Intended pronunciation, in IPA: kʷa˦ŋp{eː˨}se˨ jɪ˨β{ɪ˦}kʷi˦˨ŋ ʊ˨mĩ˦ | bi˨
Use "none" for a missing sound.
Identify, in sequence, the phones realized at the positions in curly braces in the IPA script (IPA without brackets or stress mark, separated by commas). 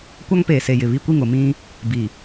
eː˨, i˦